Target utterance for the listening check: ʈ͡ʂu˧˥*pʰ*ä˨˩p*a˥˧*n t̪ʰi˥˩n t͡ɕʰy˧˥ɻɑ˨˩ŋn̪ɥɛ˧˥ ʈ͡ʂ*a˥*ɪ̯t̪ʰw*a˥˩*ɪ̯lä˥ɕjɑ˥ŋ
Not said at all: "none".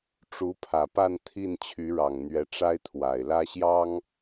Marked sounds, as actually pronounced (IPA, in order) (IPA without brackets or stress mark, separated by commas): pʰ, a˥˧, a˥, a˨˩